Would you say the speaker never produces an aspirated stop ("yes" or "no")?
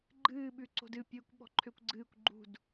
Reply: no